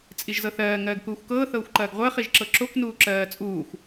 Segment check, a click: present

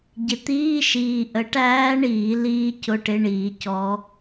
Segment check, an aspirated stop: absent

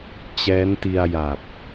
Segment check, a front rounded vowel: absent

